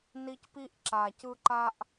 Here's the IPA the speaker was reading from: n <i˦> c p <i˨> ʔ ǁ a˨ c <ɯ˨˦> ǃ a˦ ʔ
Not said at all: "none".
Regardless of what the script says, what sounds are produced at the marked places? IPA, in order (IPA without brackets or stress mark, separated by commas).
i˦, i˦, ɯ˦